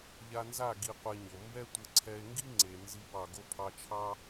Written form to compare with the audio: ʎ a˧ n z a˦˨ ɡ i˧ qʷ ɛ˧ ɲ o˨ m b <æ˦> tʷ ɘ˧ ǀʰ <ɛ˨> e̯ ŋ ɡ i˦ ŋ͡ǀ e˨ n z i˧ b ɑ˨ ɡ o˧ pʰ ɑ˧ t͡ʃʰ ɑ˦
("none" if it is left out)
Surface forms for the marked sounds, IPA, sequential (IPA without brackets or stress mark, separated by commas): ɛ˦, ɛ˧